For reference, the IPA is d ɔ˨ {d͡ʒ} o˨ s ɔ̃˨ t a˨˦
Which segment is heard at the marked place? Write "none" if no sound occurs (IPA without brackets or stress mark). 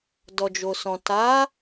d͡ʒ